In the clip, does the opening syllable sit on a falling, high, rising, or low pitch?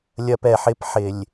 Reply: high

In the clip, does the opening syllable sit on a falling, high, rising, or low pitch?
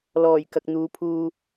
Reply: low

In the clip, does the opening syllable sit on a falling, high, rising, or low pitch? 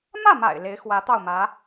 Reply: falling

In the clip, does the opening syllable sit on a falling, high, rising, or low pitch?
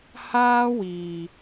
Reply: high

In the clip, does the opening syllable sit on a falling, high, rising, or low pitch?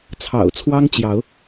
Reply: low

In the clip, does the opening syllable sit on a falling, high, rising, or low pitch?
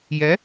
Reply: rising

